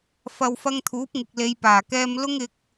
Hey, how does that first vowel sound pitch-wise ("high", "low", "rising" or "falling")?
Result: low